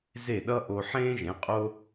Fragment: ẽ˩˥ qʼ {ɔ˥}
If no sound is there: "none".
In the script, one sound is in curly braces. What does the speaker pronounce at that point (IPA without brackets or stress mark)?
o˥